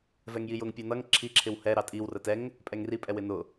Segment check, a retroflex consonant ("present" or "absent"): absent